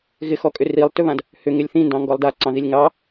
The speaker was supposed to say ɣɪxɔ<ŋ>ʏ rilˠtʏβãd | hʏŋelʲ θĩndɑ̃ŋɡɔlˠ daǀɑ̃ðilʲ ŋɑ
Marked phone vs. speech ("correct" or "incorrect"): incorrect